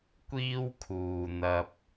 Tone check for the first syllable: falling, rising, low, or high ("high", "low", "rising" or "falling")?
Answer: high